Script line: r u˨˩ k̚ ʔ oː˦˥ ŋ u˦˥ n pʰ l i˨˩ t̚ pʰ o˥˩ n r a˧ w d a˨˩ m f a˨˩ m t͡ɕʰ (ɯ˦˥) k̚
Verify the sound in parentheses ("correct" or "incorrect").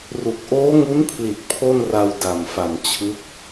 correct